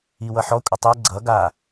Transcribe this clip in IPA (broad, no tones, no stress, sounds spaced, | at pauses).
i w ʌ ħ ɔ kʷʼ ə tˤ ɛ ɡ͡ǀ ʌ ɡ a